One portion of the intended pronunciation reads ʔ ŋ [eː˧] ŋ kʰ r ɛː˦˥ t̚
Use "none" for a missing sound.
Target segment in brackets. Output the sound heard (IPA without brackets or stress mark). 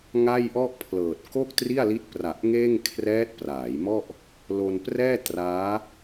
eː˥˩